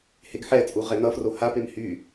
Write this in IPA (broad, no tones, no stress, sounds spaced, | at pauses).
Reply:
h e ɡ ħ ɛ t͡sʼ u ʁ ɛ n ʌ f r o h a p e m h y